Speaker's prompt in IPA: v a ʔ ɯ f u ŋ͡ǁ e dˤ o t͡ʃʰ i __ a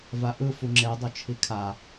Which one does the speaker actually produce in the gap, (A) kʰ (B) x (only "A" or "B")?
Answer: A